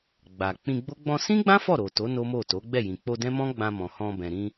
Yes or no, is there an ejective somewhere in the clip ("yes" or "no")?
no